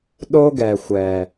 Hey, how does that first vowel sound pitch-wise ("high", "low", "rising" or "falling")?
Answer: high